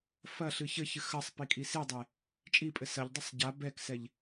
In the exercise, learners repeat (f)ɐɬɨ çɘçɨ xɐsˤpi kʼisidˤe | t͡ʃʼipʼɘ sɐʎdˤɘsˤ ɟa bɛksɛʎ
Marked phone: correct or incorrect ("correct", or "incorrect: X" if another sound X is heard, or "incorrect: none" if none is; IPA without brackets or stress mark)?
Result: correct